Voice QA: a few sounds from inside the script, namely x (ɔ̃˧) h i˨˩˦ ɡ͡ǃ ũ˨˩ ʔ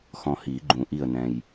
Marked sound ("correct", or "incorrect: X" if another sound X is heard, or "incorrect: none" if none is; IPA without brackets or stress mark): correct